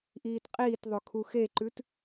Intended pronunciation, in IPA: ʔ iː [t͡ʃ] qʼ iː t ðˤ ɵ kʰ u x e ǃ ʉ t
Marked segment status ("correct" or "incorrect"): incorrect